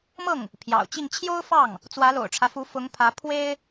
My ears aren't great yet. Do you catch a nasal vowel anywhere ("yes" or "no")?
no